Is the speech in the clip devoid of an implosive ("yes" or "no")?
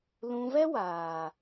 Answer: yes